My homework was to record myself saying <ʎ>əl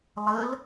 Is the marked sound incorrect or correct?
incorrect